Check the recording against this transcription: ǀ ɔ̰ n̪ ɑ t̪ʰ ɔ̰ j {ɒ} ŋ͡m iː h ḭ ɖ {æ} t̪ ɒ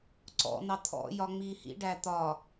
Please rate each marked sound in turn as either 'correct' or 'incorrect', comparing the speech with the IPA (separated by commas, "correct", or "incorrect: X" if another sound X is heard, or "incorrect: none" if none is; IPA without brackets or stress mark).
correct, correct